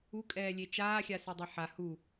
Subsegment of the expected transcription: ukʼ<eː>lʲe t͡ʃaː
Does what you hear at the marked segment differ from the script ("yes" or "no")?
yes